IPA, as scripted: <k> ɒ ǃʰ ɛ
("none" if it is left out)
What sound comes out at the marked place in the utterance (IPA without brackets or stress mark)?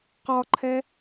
q